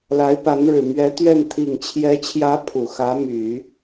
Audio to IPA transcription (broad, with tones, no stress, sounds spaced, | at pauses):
l a˧˥ ɪ̯ p a˧˥ n ɻ ɻ̩˨˩ m ɥ ɛ˧˥ t̪ ɥ ɛ˥˩ n t̪ʰ i˨˩ ŋ t͡ɕʰ j ɛ˧˥ t͡ɕʰ j ä˧˥ pʰ u˨˩ x ä˧˥ m y˨˩˦